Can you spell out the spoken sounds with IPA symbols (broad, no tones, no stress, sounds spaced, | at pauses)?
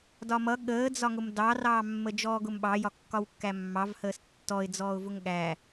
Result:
d ɒ m ʌ ɠ əː d͡z ɒ ŋ ʊ m d ɑ r ɑː mː ə d͡ʒ ɔː ɡ ʊ m ɓ ɑ j ɒ kː ɒ w kː æ mː ɑ v h əː s tː ɔ ɪ̯ d͡z ɔː ʊ̯ v ʊ ŋ ɠ æ